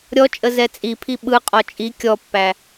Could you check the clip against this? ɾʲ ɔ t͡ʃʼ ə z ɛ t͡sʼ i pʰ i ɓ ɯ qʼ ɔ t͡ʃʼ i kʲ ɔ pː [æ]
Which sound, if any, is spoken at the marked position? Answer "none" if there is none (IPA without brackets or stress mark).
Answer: æ